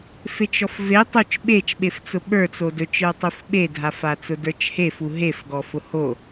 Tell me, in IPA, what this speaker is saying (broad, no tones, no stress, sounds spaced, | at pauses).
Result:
f e t͡ʃ ɔ f v e tˤ u t͡ʃ ɓ e t͡ʃ ɓ e f t͡s ʊ ɓ ə˞ t͡s o d ɵ t͡ʃ ə˞ tˤ u f ɓ e dʱ a f a t͡s ʊ d ə˞ t͡ʃ h e f u ɦ e f ɡ ɔ f ʊ h o